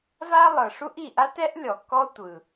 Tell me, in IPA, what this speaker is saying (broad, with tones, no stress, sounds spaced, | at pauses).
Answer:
v a˥ lˠ ɤ˩ ʂ u˥ ʔ i˩ ʔ a˥ t ɛ˥ ʔ lʲ ɔ˩ k ɔ˥ tʷ ɯ˩